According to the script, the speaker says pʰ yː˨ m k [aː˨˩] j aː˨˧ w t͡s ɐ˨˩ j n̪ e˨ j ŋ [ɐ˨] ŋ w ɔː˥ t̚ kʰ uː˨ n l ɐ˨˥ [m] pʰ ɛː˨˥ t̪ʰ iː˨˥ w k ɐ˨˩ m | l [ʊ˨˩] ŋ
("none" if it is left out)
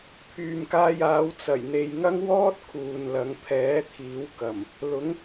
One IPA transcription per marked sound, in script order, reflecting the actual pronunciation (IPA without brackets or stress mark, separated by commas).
aː˧, ɐ˥, ŋ, ʊ˨˥